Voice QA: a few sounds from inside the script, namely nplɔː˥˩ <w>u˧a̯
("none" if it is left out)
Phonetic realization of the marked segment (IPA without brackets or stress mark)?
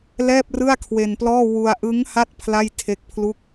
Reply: w